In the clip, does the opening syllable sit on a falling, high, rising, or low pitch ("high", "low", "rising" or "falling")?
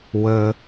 low